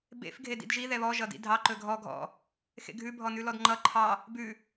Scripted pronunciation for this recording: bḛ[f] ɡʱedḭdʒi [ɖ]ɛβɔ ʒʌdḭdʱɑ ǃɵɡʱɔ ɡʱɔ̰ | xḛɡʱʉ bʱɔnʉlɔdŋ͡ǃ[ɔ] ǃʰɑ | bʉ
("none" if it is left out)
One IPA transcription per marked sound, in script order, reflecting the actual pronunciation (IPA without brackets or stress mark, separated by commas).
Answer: f, ð, ʌ